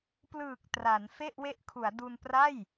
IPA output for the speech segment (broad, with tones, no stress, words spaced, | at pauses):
plɯː˨˩k̚ tra˩˦n fe˥˩ʔwe˦˥ʔkʰu˩˦a̯ du˧npra˥˩j